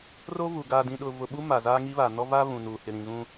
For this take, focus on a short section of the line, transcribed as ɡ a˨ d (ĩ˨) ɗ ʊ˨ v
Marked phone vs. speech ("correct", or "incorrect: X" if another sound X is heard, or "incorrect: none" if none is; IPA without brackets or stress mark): correct